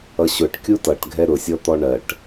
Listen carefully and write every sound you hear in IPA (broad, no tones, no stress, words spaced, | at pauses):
ʌɕʊʈ kʲutʌʈ ɡʱɛɾʊsʲɔ t̪ɔɳɜʈ